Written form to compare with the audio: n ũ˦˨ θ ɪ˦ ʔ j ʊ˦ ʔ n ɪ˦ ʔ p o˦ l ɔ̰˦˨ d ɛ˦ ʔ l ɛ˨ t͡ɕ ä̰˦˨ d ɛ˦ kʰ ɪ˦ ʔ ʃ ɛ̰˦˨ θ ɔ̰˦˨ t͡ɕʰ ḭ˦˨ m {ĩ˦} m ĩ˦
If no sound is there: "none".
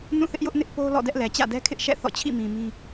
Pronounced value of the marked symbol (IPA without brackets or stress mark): ĩ˨